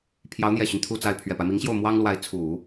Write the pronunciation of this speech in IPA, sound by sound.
pʰ j ɑ˧˥ ʊ̯ n̪ j ɛ˨˩ ɕ y˦ n t̪ʰ u˥˧ t͡s a˥˩ ɪ̯ pʰ ɥ ɛ˨˩ p a˦ ɪ̯ m i˧˥ ŋ ɕ j o˥˩ ʊ̯ m w ɑ˥ ŋ l w a˧˥ ɪ̯ t͡sʰ u˨˩˦

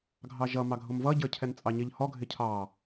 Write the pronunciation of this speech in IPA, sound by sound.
ɡʱ ɑ ʒ ʌ m ɑ ɡʱ ʊ m v ʌ ɟ ə˞ cʰ ɛ n t͡sʼ ɑ ɲ ɪ ʎ h ɔ ɡʱ ɪ cʰ ɑ

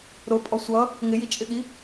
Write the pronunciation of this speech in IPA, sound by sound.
ɾ ʊ pʼ ɔ sʷ ʌ | ŋ ɪ j i t͡ʃʼ ɪ ɠ i

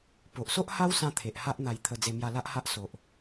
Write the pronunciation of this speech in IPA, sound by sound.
p o˨ ʔ s o˦ ʔ h a˦ w s ã˦ t̪ʰ e˨ ʔ h a˦ ʔ n̪ a˧ j t̪ʰ ə˧ d͡z e˧ m j a˧ l a˦ ʔ h a˦ ʔ s o˨ ʔ

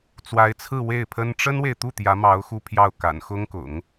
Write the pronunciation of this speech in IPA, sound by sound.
t͡s w a˧˥ ɪ̯ t͡sʰ ɹ̩˥˧ w e˥˩ ɪ̯ pʰ ə˥ n ʈ͡ʂ ə˥ n w e˨ ɪ̯ t̪ u˥˩ t̪ j ä˧˥ m ɑ˧˥ ʊ̯ x u˥˧ pʰ j ɑ˥˩ ʊ̯ k a̰˨˩ n x ʊ˥ ŋ k ʊ̰˨˩˦ ŋ

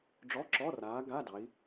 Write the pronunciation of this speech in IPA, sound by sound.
ɖ͡ʐ ɔ˧˥˧ ǁ ɔ˧˥˧ r aː˨˦ ɡ a˧˥˧ d ɑ˨˦ i̯

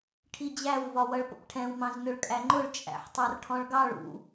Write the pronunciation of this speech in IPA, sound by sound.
ʈʰ i d͡ʑ æ w v ɒ w ʌ ɭ p ə̰ p ʈʰ ɛ̃ w m ɑ̃ z n ʊ ɭ kʼ æ ŋ͡ǃ ʊ ɭ t͡ʃʼ æ̰ ħ tˤ ɑ r ʈʰ ɔ̃ ɭ ɡ ɑ ɭ ṵ

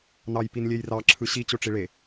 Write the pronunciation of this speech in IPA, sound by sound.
n ɑ j p i n lʲ e j r ɑ ǁʰ ɯ ɕ i t͡ɕ o ʈ͡ʂ i ɭ e

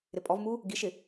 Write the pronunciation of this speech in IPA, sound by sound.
ɾ ɪ pʼ ɔ v m u | ɡ i ʃ ɪ

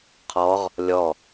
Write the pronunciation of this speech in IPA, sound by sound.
qʰ ɔ ʁ | lʲ ɔ

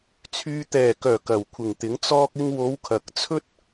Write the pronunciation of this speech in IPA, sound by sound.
t͡sʰ yː˨ t̪ ɛː˨˩ k œː˨˩ k ɐ˨˩ w kʷʰ ɪ˨˩ ŋ t̪ ɪ˨˥ ŋ t͡s ɔː˧ k̚ ɪ˧ ŋ w o˨˧ w kʰ ɐ˨ k̚ t͡sʰ ɵ˥ t̚

